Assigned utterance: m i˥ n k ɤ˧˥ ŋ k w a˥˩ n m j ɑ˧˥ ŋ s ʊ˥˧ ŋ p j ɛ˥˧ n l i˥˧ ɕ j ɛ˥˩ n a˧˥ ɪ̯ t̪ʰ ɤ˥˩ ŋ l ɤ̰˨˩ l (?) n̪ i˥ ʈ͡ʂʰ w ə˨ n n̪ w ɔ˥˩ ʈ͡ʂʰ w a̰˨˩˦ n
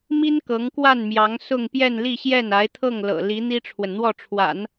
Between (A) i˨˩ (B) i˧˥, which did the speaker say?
B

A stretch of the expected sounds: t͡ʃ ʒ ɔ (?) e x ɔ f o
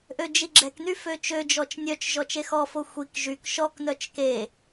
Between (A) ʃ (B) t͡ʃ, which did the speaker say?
B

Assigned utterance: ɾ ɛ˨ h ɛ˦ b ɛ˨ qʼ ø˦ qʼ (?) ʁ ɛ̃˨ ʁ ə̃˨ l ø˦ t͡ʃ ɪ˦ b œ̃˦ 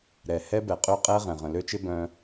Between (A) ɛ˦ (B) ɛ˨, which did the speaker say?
A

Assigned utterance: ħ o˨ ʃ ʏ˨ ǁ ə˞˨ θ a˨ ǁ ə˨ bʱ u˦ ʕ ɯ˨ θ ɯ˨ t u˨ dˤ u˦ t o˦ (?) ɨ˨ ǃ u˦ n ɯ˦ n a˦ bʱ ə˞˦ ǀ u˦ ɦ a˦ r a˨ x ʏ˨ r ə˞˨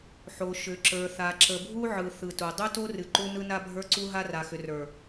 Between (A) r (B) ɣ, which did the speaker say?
A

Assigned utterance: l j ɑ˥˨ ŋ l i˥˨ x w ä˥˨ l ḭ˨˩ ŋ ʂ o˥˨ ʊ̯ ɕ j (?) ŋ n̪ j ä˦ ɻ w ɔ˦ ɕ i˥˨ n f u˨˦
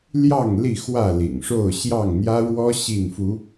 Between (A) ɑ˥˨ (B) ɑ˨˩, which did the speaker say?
A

